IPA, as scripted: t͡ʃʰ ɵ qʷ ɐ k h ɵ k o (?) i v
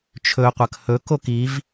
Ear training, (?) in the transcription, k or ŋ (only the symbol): k